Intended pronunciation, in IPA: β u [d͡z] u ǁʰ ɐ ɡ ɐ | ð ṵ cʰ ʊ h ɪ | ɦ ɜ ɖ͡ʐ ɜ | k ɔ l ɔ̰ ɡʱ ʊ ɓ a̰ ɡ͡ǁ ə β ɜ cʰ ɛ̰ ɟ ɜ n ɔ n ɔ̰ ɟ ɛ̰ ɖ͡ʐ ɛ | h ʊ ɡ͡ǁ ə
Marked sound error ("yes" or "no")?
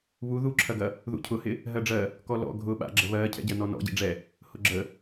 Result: yes